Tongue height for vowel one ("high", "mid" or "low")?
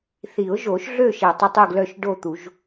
high